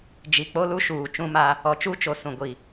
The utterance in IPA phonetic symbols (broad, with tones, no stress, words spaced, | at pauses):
d͡ʒi˨k͡po˦lu˦ʃuː˨ t͡ʃũ˦ma˦ | ɔ˨t͡ʃu˦t͡ʃo˨ sũ˨ɡʷi˨